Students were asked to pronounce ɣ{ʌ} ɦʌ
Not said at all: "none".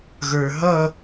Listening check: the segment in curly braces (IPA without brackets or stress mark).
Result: ə˞